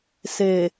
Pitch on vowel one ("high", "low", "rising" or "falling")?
low